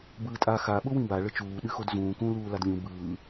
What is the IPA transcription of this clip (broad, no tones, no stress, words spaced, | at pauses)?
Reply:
bɯːtʼa xa ɓʊwĩba ɭət͡ʃuː ɗɨxodzũː kũ luːladlʲũ bɯː